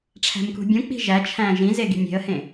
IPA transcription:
ʈ͡ʂʰæ̤mkṳbʲũk͡pi̤ ʒæt͡ʃʰæ̃ ʒĩze ɡi̤mʲe̤ə̯hẽ

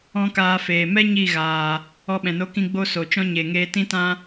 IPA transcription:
ɔ̃˦kaː˧feː˨ mɛ˦ ɲi˦˨ɣaː˨ | ɔ˧ɓɛ̃˨no˧kĩ˧ ɡ͡bo˦so˨t͡ʃɔ̃˦ ɲe˨ ŋeː˧tĩ˦tã˦

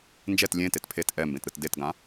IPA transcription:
nd͡ʒɛt lʲẽtet pʰet ʔɛmbẽtɾɯt detɡã

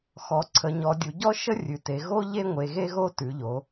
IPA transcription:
xɔ˩˧ǀʰə˩˧ɲɔ˩˧ dʲu˩˧ɟɔ˥ʃə˥ rʲʉ˩˧te˩˧ ɣo˥ ʎe˥ ŋʷe˩˧ɣe˥ɣo˥ tʉ˩˧ʎo˩˧

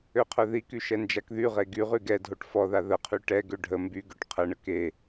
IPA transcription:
øqʰœðiky ʃɛnd͡ʒakðyʁe ɡyʁy ɡɛdʱoʈ fɔða ðəqʰy ʈɛɡø ɖʱə mbyɡøʈ qʰəɳə ke

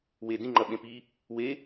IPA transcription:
we dĩ ŋ͡ǃɐɓẽpi | we

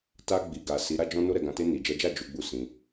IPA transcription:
ta˧ɡ͡bi˨ɡa˨ si˨˦ ɾa˦d͡ʒɔ̃˦ no˦ɾɛ˦˨ɡã˧ te˧ni˨d͡ʒɛ˨˦d͡ʒa˦˨ d͡ʒu˨˦ɡ͡bu˦˨ sĩ˧

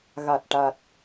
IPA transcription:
ɣa˨˩t̚ʈa˨˩t̚

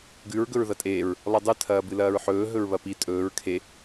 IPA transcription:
ɡʉɹ ɡɵɹðɐtʼeːɹ | lˠɨdˤɨ tʰɐːbɨlɐːɹħɵː ɦɵɹβɐpi tʼɵːɹ kʰe

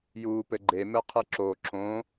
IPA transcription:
juːpɘɡ͡ǃe mɘqʰɨǁo ǁõ

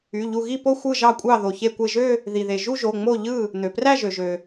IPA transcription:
y˩˧˩ʎu˧˩ɣi˥˩po˥˧ xʷɯ˥˩ʒɑ˥˩kʷʼɑ˥˩ ðo˩çe˧˩kʷe˧˩ʒø˥˧ | ði˩ðe˩ ʒu˥˧ʒo˩˧˩ŋ͡mo˥˩ ʎɯ˥˩ | n̪ø˩præ˥˩ʒø˩ʒø˩

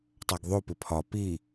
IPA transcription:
tˤaɡðˤopɪ pʰɒ pi

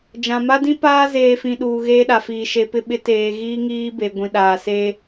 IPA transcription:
d͡ʒã˨ ma˦dĩ˦paː˦ zeː˨fĩ˨ ɗuː˨ɣeː˦ɗa˨fiː˨ ʃe˨pɪ˦˨ ɓɪ˦teː˨ ɣiː˦ŋiː˦be˨ɡʷĩ˨ ɗaː˨seː˦

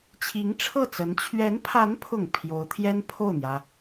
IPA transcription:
t͡ɕʰi˧˥ŋʈ͡ʂʰɤ˥˩t͡sə˧˥n t͡ɕʰɥɛ˧˥npʰa˧˥npʰʊ˨˩ŋ pʰjo˧˥ʊ̯t̪ʰjɛ˥n pʰo˥˩ʊ̯n̪jä˩

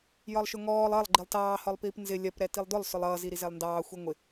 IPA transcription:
jɒlˠʃʊŋɔːlˠ ʌlˠ ɡ͡ǃilˠtɑː hɒlˠpiːpnzɪ lʲɜp ɾɛtilˠdʊlˠ sʊlˠʌː ziɾizɛlˠndɑː xʷiŋʷɪ

